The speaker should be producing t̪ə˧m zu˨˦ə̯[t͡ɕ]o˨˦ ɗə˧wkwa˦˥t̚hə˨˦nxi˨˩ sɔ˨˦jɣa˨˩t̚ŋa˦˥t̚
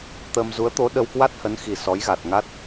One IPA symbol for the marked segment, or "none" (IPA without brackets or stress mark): t̪